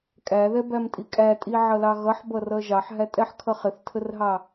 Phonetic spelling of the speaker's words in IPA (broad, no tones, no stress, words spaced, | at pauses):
kʼæðɛbæmtʼi kʼætʼiʕʌlɑ ɣʌħbʌrʌ ʒɑħɦætʼɛħkʰʌ χɪθtʰərɦɑ